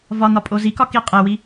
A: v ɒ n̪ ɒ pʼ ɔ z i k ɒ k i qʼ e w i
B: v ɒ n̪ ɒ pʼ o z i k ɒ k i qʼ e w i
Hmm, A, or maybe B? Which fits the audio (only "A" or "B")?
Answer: B